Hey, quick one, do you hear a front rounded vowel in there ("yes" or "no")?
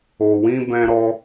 no